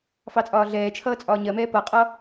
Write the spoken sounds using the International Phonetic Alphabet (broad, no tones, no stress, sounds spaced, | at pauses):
f ɑ t͡sʼ ɒː ɮ ɛː t͡ʃʰ ʌː t͡sʼ ɒː ɲ ɜ m ɛː p ʌ qʼ ɒ